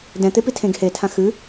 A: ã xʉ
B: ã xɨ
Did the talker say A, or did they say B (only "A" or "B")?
B